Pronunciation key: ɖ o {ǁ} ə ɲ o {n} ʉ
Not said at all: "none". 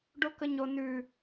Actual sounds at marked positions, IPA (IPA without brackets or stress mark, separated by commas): k, n